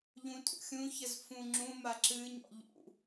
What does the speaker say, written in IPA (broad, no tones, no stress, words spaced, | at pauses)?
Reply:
ʎũtʼṵxʲũçəz fũŋ͡ǁũma ǁɨɲɔ̰ ʎṵ